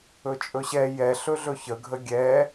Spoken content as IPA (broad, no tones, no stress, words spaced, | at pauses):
ɵt͡ʃʼɵɕɛ jɛ ɬɵɮɵçə ɡʱəɡʲɛ